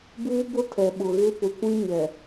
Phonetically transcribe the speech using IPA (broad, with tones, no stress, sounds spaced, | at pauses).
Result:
b uː˦ b ʊ˦ tʰ ɛ˨ ɓ ʊ˨ ɣ ɪ˦ p ʊ˨ kʷ ĩ˦ ɲ ɛ˨